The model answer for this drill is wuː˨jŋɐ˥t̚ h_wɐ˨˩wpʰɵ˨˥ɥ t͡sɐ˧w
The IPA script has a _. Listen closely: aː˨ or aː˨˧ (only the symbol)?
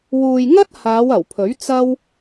aː˨˧